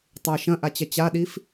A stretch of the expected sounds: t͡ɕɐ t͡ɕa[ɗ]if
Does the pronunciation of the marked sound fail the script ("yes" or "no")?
no